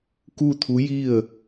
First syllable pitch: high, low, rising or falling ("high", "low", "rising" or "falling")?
falling